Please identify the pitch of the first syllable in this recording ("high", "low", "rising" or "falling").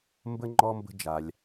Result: high